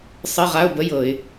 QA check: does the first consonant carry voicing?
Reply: no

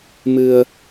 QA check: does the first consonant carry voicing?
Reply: yes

